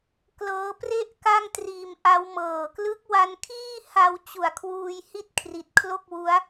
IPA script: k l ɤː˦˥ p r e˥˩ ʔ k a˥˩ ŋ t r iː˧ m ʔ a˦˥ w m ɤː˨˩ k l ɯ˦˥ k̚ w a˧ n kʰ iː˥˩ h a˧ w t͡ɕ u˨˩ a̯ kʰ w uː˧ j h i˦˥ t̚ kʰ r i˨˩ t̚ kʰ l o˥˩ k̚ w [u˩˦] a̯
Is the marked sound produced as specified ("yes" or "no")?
no